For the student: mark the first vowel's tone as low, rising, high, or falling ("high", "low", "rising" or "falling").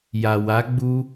low